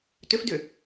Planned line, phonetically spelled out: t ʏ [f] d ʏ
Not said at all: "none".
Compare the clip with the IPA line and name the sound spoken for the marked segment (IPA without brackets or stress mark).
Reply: f